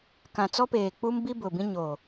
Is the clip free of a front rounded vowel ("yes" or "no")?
yes